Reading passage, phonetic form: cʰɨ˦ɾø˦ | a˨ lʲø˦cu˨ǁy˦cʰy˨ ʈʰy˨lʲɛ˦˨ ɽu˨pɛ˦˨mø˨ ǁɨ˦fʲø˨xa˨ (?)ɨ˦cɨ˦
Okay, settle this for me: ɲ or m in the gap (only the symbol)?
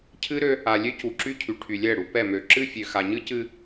ɲ